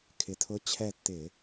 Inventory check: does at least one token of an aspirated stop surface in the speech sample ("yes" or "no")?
yes